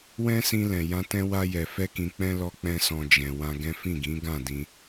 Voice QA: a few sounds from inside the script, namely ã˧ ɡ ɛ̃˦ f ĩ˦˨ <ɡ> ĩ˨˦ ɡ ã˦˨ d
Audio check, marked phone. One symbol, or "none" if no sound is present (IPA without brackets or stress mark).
ɡ